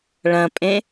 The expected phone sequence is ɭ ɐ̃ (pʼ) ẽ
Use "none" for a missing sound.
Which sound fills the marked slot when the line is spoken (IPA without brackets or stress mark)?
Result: pʼ